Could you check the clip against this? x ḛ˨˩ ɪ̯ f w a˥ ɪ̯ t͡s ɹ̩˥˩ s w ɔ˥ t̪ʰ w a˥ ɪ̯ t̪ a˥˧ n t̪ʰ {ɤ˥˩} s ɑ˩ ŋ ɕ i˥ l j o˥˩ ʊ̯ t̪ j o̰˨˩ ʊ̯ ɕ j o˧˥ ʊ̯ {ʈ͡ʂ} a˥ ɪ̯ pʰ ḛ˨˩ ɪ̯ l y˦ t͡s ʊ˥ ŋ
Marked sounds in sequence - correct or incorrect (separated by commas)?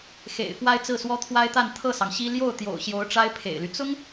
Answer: correct, correct